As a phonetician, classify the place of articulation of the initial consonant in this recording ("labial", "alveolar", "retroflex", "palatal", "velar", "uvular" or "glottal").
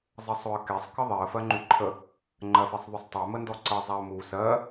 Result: alveolar